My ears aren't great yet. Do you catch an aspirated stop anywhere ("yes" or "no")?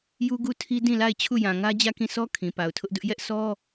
yes